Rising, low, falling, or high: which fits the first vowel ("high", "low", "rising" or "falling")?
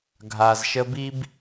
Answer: low